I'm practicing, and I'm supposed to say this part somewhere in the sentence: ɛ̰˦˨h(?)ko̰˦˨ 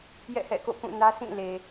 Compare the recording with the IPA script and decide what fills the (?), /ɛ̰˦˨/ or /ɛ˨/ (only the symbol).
ɛ̰˦˨